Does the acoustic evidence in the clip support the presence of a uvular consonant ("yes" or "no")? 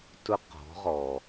yes